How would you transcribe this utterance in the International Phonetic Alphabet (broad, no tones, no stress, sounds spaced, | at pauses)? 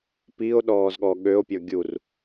p i o̯ ɗ ɔː z ɠ ɔ ɠ ø o̯ pʲ ɔ ɡʲ u r